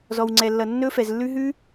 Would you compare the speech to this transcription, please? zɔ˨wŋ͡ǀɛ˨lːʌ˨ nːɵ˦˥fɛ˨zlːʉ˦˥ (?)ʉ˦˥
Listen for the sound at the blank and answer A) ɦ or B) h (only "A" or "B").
A